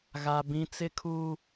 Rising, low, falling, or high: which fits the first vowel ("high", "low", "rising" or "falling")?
high